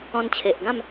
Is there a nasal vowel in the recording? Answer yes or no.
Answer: yes